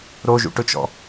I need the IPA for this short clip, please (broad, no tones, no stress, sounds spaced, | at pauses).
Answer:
ɾ o ʒ ṵ ʈ ʊ t͡ʃ ɔ̰